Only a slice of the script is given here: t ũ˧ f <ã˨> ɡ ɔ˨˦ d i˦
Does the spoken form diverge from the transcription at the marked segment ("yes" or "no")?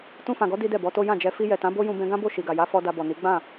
no